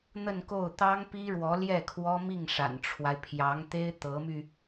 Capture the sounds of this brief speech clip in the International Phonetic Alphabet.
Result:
n̪ ə˥˧ n k o˥˩ ʊ̯ t̪ ɑ˥ ŋ p i˥ ɻ w ɔ˧˥ l j ɛ˥˩ kʰ w ɔ˥ m i˥˩ ŋ ʂ a̰˨˩ n ʈ͡ʂʰ w a˦ ɪ̯ pʰ j ɑ˧˥ ŋ t̪ e˥ ɪ̯ t̪ ɤ˧˥ m y˧

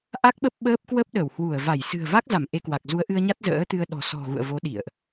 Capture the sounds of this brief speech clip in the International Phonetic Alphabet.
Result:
ʔ a˦˥ k̚ ɓ ə˦˥ p̚ ɓ əː˦˥ p̚ k w ə˦˥ p̚ ɗ ə˧˩ w h w u˧˩ ə̯ v a˧˩ j s ɨ̤˨˩ ə̯ v a˦˥ k̚ z a˧˩ m ʔ e˧ k w a˨˩ k̚ z u˨˦ ə̯ ʔ ɨ˧ ə̯ ɲ a˦˥ t̚ z ə̰ː˧˥ t̪ ɨ˧ ə̯ ɗ ɔ̤˨˩ s ɔ̤˨˩ ɣ ṵ˧˨ ə̯ v o˨˦ ɗ ḭ˧˨ ə̯ ʔ

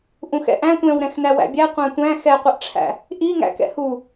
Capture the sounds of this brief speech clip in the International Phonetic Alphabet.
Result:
ʔ ũ x ɛ̰ ʔ æ̃ tʷ ɛ̃ w ɾ ɛ̃ x n æ w æ̰ bʲ æ qʷ æ̃ tʷ æ̃ x ɛ qʷ ɯ ʔ ʈ͡ʂʰ æ̰ | ʔ i ŋ æ̰ k ɛ̰ h u

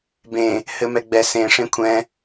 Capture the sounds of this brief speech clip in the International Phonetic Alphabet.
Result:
b ẽ | h ɘ m ɛ ɡ͡b ɛ s ẽ ʂ ẽ kʷʰ ɛ̃

